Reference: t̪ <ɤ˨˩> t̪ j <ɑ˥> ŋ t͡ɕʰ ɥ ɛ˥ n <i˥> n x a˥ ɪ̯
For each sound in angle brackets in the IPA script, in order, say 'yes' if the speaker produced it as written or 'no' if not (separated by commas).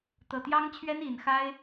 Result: yes, yes, no